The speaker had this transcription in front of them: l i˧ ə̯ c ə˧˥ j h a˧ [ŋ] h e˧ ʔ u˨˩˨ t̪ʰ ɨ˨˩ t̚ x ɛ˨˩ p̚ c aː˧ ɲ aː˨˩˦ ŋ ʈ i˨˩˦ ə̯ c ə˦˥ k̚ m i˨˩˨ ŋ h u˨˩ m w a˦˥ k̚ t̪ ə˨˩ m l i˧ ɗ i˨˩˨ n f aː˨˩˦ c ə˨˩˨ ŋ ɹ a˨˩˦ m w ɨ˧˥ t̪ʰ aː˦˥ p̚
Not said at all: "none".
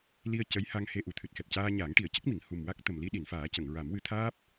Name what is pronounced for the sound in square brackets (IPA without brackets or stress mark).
ŋ